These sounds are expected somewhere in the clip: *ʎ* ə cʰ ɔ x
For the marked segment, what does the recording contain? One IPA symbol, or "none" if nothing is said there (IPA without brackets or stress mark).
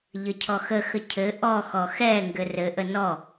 ʎ